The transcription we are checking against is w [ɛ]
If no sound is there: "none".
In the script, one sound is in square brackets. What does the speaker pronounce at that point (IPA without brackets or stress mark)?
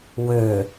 ø